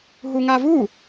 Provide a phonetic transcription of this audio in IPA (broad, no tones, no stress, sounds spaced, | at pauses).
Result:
ɦ u ŋ a v u